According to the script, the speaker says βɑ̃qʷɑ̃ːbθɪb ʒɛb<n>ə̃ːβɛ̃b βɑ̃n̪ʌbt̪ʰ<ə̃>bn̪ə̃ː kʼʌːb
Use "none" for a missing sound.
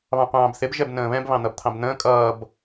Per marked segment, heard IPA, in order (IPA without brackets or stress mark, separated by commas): n, ɑ̃